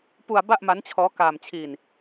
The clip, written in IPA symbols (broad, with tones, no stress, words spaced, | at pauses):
pu˧a̯ ba˥˩ʔma˦˥nt͡ɕʰɔː˦˥ kaː˧mt͡ɕʰiː˧n